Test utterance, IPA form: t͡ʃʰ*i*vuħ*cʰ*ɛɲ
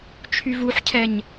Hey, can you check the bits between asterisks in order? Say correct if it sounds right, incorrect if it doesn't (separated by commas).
incorrect, correct